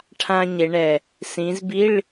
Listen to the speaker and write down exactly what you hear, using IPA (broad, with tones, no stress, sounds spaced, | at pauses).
ʈʰ ã˥ ɲ e˨˦ ɳ ɛ˨˩ | s ĩ˨˦ z b i˧˥˧ ɭ